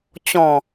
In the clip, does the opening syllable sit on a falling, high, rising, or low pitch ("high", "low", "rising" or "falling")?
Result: low